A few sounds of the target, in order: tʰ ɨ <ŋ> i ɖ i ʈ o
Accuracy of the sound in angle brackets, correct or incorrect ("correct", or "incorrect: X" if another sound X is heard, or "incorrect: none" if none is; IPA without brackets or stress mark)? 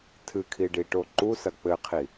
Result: incorrect: kʰ